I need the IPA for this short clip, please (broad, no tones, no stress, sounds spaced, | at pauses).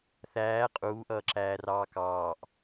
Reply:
θ æː qʼ uː ʔ ʌː ǁ æː r ɑː k ɑː ʔ